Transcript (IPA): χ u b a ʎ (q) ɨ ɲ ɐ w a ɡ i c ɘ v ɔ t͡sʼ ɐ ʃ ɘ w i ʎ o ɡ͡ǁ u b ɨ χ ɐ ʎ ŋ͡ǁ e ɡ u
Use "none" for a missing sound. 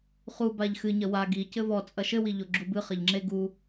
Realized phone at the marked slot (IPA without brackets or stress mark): x